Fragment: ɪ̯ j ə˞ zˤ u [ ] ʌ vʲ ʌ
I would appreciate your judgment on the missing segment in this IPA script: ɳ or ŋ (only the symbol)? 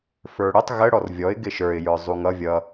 ŋ